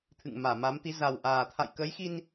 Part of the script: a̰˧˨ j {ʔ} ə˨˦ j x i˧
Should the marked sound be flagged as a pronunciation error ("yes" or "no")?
yes